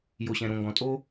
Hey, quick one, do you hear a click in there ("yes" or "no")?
no